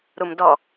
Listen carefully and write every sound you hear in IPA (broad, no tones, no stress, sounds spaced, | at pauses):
ɾ u m d ɔ